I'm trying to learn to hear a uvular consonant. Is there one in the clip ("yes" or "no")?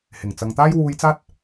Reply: no